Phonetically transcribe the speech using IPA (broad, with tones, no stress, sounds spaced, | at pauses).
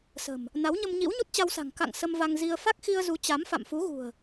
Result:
s ə̤˨˩ m | n a˨˦ w ɲ ə˧ m ɲ ḭ˧˥ w ɲ u˦˥ t̚ t͡ɕ a˧ w s a̤˨˩ ŋ k a̰˧˨ ŋ s ə˧ m v a˧ ŋ z i˧ ə̯ f a˦˥ k̚ x i˧ ə̯ z u˨˦ t͡ɕ a˨˦ m f a̰˧˨ m f u˨˦ ɣ ṳ˨˩ ə̯